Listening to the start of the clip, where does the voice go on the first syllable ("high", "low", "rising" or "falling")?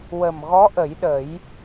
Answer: low